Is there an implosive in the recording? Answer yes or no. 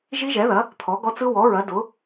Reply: no